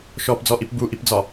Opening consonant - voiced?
no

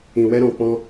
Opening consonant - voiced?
yes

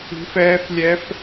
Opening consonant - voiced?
no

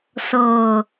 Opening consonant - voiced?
no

